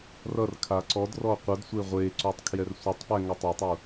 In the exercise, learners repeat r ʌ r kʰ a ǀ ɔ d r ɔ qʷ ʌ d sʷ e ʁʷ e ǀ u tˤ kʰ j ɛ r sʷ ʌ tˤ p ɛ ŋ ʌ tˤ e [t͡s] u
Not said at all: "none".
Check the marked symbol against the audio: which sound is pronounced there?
tˤ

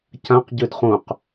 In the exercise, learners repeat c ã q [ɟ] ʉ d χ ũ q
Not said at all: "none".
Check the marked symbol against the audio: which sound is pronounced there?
ɟ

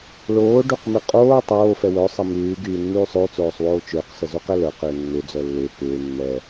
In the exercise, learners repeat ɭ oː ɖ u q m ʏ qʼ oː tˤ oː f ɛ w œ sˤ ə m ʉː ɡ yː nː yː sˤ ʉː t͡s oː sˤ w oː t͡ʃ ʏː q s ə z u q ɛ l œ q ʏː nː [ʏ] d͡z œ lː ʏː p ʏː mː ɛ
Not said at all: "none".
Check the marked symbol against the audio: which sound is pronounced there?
ʏ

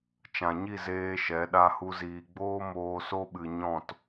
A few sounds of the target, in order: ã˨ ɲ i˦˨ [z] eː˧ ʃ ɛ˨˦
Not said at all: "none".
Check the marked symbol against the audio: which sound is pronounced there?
z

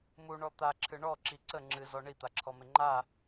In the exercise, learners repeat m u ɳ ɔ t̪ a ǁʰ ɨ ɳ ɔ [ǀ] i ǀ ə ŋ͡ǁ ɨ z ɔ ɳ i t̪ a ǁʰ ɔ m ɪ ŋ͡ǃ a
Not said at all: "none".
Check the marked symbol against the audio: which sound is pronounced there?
ǁ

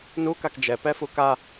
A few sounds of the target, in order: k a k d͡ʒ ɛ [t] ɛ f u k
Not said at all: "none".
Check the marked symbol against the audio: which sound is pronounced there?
p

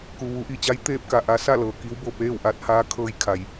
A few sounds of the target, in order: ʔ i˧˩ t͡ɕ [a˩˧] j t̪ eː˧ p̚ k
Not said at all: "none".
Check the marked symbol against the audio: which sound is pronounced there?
a˧˥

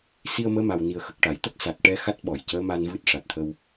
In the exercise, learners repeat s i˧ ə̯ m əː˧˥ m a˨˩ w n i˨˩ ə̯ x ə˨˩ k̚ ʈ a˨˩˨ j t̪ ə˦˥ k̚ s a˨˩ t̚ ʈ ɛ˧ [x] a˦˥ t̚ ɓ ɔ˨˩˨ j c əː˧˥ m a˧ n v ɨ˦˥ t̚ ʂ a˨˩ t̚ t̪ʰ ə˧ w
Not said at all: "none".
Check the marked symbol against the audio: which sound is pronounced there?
x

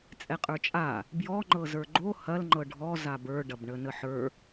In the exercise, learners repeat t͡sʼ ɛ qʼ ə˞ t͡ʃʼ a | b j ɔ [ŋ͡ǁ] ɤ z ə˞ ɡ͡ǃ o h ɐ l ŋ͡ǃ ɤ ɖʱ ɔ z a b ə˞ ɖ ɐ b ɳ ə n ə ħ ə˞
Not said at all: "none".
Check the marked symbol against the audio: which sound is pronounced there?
ŋ͡ǃ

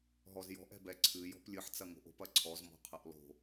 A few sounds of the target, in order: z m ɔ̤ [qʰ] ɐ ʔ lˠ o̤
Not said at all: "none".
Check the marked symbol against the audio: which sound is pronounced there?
qʰ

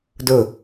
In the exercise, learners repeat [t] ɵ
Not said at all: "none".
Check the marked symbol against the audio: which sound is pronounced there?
d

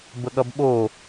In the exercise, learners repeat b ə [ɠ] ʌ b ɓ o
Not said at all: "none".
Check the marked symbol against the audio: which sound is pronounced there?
ɠ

